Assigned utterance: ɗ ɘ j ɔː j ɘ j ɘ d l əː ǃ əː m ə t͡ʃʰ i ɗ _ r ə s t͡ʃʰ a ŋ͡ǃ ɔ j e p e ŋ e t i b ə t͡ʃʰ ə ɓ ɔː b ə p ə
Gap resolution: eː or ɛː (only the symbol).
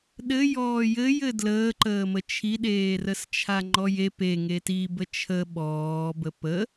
eː